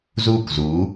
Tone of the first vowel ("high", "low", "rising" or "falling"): falling